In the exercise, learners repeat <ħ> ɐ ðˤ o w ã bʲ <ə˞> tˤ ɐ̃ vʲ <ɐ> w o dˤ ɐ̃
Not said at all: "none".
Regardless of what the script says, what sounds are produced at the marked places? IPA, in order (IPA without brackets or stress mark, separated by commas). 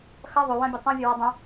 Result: x, ɐ, ɐ